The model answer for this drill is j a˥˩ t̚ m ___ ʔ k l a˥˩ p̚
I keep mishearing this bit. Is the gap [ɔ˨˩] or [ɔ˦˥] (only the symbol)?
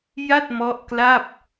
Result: ɔ˦˥